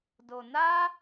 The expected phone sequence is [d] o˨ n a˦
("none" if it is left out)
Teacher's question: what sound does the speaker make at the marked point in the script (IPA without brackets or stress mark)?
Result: d